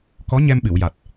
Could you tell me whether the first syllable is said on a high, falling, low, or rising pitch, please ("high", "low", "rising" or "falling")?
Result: rising